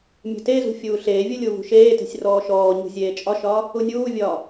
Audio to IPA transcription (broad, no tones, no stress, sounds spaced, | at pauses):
mʲ e̤ t e z ṳ fʲ uː ɬ eː vʲ u lʲ u v ṳ ʃ eː t e̤ sʲ r ɔː ʃ ɔː ɲ ṳ zʲ eː t͡ʃʼ ɒ ʃ ɒː | u nʲ uː vʲ ɒː